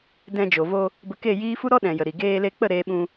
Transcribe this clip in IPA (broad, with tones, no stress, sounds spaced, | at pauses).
d ɛ̃˧ d͡ʒ o˨ v o˧ | b ə˧ k e˦˨ j iː˦ f u˦ ɾ ɔ˦ ɗ ɛ̃˨ j ə˨ ɾ i˨ ɡ eː˧ l e˧ k͡p ə˦˨ ɾ eː˧ ɓ ũ˧